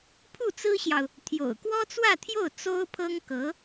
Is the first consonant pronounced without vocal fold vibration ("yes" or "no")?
yes